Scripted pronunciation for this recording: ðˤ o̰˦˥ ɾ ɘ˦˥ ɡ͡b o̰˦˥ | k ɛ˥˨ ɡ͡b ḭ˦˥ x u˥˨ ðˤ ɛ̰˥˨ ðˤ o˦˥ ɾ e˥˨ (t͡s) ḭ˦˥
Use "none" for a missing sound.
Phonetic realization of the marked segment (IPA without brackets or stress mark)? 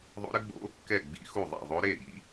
ɾ